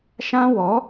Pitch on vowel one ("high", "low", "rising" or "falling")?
high